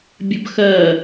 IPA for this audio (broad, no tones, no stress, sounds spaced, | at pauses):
bʲ ə b x ɜ